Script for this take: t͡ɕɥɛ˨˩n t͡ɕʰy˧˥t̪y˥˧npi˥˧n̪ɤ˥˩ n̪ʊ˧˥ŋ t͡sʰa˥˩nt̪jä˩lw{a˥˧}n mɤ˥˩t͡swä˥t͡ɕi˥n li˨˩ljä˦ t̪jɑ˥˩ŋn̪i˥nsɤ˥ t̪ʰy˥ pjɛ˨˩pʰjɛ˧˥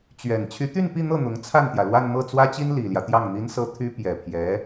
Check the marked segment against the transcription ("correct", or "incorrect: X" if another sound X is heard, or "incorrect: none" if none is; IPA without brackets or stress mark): correct